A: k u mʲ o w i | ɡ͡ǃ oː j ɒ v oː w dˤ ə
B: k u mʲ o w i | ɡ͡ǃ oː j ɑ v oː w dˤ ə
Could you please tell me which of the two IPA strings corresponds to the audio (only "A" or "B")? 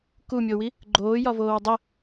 A